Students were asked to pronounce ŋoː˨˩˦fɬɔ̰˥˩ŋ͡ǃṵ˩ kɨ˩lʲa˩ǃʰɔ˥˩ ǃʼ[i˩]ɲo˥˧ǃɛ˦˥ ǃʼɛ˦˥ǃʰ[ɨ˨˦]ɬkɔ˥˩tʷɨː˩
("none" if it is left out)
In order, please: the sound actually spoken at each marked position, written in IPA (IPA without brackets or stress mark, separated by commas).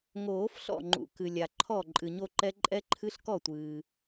ɨ˩, ɨ˦˥